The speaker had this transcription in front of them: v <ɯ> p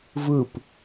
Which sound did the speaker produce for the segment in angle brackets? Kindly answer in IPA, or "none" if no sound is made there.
ɯ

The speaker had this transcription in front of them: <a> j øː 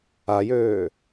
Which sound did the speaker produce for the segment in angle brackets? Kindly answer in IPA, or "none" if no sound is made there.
a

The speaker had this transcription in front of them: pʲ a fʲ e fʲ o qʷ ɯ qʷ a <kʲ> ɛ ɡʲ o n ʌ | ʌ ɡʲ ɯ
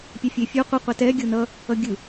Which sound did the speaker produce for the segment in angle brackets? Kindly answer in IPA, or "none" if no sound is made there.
t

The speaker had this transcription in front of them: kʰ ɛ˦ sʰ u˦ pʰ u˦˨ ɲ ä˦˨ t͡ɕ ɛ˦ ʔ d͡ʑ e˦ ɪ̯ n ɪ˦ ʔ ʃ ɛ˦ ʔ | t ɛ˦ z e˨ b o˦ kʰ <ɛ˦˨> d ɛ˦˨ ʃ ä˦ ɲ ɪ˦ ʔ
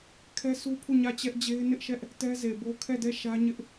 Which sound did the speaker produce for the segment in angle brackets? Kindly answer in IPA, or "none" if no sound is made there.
ɛ˦˨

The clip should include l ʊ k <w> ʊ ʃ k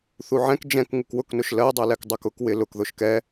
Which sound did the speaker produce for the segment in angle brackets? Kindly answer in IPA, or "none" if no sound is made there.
ð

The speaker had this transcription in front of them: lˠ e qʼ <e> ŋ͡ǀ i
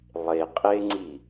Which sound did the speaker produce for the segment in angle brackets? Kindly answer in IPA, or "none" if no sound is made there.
e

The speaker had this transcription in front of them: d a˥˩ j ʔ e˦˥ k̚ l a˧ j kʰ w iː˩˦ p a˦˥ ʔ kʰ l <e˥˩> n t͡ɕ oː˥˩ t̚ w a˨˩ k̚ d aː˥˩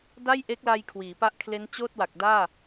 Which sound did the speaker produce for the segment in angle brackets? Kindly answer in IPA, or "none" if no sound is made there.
e˦˥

